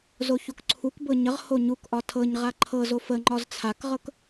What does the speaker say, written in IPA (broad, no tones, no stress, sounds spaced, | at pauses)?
z o ç o k ǀʰ u k b ɤ ɲ ə ʁ h o ɲ u k ʔ ɒ tʰ ɤ ɲ ʁ a ǃʰ ɤ z o f ə ŋ͡ǃ ɒ z t͡sʰ a k ʁ ɤ k